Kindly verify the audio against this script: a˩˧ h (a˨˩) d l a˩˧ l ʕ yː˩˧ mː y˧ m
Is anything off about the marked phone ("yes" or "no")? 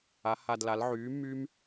no